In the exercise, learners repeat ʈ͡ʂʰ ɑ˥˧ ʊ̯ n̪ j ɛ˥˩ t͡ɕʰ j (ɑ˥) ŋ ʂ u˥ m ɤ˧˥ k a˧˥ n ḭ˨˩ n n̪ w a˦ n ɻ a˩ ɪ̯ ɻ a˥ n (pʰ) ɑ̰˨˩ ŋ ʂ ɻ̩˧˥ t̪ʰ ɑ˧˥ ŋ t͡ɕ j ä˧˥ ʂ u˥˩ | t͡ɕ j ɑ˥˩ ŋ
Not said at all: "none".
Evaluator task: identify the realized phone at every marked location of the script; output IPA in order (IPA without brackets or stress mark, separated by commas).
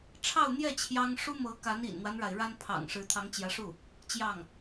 ɑ˥, pʰ